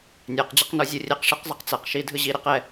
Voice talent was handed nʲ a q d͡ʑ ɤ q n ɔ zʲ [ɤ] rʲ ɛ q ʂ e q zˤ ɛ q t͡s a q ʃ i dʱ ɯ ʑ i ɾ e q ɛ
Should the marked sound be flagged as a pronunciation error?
yes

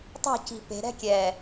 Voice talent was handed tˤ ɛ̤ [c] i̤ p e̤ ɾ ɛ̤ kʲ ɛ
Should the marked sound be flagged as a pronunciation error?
no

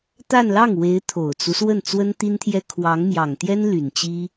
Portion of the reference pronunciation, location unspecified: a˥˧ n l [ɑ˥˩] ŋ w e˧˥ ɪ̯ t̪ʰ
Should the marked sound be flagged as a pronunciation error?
no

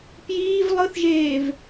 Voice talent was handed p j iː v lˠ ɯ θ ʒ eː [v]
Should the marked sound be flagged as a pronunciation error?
no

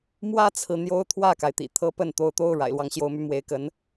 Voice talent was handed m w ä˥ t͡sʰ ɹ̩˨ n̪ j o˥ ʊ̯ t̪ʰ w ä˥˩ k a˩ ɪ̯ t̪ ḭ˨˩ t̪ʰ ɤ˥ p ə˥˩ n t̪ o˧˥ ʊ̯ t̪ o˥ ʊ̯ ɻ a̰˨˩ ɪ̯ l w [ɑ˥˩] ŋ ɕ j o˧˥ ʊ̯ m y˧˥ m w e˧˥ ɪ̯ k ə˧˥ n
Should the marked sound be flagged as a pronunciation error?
yes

